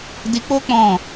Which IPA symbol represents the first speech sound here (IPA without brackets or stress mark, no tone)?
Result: d